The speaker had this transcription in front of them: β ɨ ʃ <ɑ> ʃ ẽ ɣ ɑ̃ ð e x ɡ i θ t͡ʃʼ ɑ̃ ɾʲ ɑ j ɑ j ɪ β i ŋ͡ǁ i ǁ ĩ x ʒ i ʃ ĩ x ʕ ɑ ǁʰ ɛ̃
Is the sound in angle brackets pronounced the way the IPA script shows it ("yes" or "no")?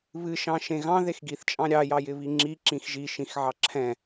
no